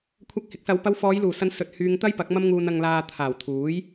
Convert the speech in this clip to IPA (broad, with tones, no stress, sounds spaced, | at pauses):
kʷʰ ɐ˧ k̚ h ɪ˨˥ k̚ s ɐ˨˧ w p ɐ˧ w f ɔː˨˧ j l uː˨˩ s ɐ˨˧ n s ɵ˨ t̚ h yː˧ ŋ t̪ ɐ˥ j p ɐ˨˥ k̚ m ɐ˧ m ŋ uː˨ n ɐ˨ ŋ l aː˨ t̪ʰ aː˨˩ w t̪ʰ uː˨˥ j